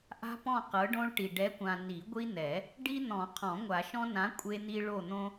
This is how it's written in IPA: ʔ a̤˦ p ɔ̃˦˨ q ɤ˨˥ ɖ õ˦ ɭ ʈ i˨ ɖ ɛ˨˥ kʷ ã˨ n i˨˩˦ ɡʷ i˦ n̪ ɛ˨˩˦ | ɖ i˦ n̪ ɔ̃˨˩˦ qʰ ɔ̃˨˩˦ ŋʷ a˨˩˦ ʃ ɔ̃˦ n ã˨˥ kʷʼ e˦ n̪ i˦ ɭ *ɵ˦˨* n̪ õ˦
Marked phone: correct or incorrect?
incorrect